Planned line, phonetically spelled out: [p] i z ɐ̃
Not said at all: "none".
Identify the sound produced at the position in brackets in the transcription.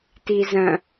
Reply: t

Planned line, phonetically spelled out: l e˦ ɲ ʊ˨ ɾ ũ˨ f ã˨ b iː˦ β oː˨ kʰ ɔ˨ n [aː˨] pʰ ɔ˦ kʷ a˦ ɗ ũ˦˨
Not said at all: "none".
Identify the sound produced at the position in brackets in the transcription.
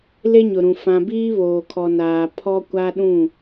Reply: aː˨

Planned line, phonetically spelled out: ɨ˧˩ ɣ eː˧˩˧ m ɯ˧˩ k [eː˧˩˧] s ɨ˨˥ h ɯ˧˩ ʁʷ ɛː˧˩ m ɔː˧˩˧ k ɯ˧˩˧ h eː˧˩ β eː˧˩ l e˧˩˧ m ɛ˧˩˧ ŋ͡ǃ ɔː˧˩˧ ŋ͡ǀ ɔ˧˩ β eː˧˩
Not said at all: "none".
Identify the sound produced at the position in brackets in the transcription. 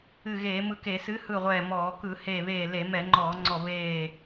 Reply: eː˧˩˧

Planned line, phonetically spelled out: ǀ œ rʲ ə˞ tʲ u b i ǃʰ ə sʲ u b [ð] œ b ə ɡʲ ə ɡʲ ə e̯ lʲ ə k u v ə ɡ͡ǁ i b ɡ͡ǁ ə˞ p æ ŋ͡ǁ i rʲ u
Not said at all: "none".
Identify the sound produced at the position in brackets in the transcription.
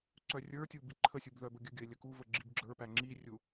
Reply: ð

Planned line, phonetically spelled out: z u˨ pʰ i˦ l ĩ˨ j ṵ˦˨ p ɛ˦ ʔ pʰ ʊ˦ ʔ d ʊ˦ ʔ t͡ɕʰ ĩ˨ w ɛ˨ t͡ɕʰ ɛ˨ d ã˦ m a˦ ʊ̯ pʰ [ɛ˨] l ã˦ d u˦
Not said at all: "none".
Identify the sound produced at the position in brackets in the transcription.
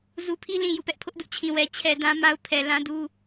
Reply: ɛ˨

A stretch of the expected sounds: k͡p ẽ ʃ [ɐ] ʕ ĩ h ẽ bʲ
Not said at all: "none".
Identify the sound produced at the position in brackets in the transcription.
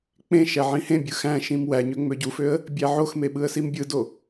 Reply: æ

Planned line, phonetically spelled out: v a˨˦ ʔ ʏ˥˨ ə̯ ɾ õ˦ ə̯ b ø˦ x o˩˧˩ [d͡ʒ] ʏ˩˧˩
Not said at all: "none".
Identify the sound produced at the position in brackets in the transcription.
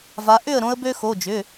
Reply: d͡ʒ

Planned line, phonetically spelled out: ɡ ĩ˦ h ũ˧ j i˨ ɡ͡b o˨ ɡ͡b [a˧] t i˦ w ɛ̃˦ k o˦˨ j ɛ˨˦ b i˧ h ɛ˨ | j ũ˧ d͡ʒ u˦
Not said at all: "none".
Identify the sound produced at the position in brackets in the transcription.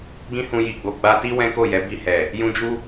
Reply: a˧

